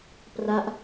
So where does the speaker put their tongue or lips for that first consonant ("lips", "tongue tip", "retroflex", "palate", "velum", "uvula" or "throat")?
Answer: lips